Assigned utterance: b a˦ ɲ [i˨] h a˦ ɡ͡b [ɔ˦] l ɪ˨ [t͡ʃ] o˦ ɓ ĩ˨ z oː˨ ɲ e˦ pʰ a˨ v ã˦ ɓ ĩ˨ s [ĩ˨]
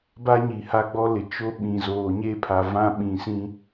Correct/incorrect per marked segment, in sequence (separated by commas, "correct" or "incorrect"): correct, correct, correct, incorrect